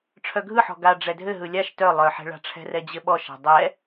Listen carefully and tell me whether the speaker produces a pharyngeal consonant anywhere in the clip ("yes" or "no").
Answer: yes